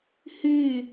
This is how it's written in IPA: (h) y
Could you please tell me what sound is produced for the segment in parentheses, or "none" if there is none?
h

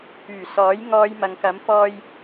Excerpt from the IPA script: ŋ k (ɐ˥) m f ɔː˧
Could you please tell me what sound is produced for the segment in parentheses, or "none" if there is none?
ɐ˨˥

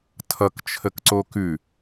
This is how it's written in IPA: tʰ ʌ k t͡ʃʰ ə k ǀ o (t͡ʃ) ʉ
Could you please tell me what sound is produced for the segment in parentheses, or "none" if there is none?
k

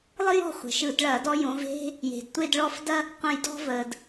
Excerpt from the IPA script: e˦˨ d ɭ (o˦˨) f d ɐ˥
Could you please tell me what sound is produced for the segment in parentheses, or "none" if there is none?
ɔ˦˨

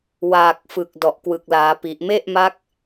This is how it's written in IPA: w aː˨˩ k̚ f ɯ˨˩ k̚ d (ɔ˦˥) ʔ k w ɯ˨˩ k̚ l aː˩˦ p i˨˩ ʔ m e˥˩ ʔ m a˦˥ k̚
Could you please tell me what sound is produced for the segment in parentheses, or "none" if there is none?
ɔ˨˩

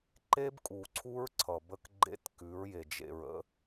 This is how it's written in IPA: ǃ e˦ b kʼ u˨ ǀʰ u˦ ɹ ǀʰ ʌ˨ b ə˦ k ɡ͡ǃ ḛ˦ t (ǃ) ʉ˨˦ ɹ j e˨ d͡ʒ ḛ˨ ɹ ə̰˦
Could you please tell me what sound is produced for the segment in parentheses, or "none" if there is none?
k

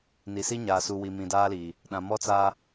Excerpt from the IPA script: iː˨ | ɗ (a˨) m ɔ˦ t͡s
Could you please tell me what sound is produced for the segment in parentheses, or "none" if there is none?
ã˨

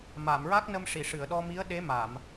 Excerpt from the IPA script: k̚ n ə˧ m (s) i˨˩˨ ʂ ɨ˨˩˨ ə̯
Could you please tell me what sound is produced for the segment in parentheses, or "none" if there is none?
ʂ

